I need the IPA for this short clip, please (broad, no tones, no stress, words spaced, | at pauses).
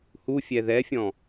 hufʲɛ ðɛfʲɔ̃